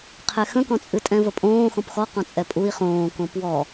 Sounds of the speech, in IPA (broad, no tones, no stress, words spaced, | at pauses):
qʰɛxə̃kɔ̃t͡sʼɨ tʼɛ̃vəpʼõː xɔ̃pxɔ qɔ̃t͡sʼɛpʼui̯ χõːkõ pwɔ